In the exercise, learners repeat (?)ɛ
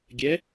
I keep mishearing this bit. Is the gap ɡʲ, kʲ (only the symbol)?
ɡʲ